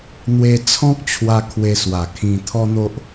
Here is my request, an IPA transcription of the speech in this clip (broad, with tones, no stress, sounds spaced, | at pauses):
n̪ w e˧ t͡sʰ ɔ̃˦ k̚ t͡ɕʰ w a˧ kʰ w e˧ s w a˨˩ kʰ ĩ˧ t̪ʰ ɔ˦ n̪ o˦ ʔ